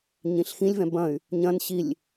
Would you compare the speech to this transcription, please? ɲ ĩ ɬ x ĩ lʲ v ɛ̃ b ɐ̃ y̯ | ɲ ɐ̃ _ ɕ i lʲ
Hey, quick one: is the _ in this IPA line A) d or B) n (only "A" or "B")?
B